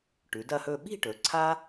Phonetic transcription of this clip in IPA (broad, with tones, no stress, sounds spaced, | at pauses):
ʈ ʉ˩˧ d ɐ˥˧ h ɵ˥˧ ɓ i̤˥˧ ʈ ɵ˩˧ ǀʰ a˥